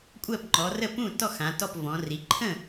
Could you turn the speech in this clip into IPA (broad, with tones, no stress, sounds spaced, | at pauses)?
kʷʼ ɜ˥˩ p ŋ͡ǃ ɔ˩˧ r ə˥˩ p ũ˥˩ t ɔ˥˩ x ã˩˧ t ɔ˥˩ p v ɔ̃˩˧ r i˩˧ ǃʰ ə̃˥˩